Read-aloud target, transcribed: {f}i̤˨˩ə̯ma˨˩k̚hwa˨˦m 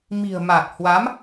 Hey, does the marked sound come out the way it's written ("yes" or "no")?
no